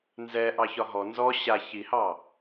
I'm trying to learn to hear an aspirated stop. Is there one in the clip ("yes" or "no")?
no